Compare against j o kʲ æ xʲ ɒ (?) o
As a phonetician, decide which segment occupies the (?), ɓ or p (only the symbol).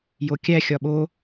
ɓ